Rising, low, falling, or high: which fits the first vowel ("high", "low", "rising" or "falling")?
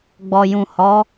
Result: low